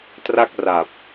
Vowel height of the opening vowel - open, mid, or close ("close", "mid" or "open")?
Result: open